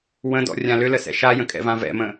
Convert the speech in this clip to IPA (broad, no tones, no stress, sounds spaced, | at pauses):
w ə̃ d ɔ̰ rʲ ã l ʏ l ə s ɛ̰ ʃ a j ə̃ kʼ ɛ̰ v ã v ɛ̰ m ə̃